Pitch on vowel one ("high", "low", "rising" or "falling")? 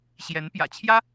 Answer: rising